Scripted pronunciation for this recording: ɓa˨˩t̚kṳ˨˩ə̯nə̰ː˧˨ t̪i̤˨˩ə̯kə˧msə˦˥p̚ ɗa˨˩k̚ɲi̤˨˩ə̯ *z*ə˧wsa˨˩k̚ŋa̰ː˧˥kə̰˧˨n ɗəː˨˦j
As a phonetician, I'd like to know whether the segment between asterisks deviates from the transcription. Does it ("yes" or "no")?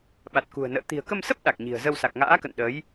no